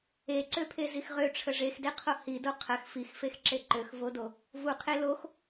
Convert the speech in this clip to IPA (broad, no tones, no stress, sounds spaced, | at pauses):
e ǀ ø pʰ e z i x ʁ ø ʈ͡ʂʰ ə ʐ e x d e qʰ o h i d o qʰ ə x f i x f e x ǁ e ǃ ø x v o d o | v u qʰ e l o x